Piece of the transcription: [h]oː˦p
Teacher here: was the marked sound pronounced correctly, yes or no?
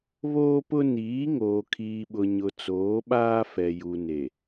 no